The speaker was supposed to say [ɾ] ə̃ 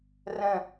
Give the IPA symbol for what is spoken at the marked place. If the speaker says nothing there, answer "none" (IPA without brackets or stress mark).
r